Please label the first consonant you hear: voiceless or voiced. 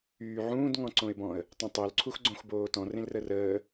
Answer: voiced